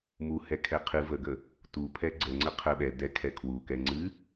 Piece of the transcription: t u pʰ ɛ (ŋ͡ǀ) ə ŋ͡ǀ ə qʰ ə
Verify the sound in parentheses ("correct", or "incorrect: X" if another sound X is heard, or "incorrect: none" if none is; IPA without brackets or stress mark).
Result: incorrect: ɡ͡ǀ